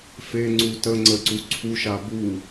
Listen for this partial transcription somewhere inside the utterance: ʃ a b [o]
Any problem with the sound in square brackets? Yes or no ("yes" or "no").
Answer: yes